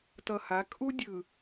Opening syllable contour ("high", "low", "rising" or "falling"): low